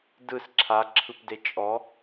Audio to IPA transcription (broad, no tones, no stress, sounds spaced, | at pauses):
d ɯ s ǁʰ a ǁʰ ɯ p d e t͡ʃʼ ɔ